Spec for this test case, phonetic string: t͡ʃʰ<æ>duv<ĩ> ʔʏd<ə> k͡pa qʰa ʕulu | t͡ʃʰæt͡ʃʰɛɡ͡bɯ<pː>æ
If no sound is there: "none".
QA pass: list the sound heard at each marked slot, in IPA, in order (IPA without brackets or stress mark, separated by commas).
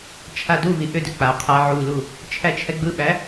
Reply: a, i, ʏ, ɓ